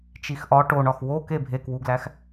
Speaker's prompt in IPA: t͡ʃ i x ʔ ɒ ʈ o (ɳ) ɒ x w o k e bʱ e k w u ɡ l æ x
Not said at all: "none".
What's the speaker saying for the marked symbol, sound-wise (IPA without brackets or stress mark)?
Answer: ɳ